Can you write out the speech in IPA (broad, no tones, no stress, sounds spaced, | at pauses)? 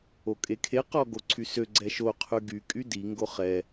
o kʼ e kʰ e q ɔ ɡ o ǀʰ y s ø ɡ͡ǀ ɛ ʃ o qʰ y ɡ y kʼ y d i ŋ ɡ o χ ɛ